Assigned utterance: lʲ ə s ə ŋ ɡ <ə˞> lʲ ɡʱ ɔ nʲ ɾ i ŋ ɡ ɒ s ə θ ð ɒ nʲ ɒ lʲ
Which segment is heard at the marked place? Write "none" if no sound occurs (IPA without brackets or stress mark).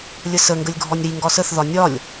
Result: ə